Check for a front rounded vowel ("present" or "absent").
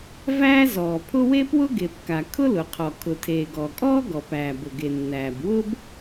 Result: absent